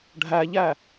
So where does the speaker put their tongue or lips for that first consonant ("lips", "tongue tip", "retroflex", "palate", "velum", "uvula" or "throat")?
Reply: retroflex